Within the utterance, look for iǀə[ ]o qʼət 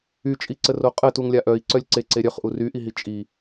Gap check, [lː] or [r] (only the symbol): r